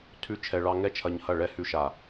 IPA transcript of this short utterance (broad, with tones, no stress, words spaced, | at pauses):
tʰʉ˦t͡ʃʰɛ˧ɭɑ˦ ŋɛ˦t͡ʃʰɐ˧ɲhɐ˦˨ ɭɛ˦ hʉ˧ʃa˨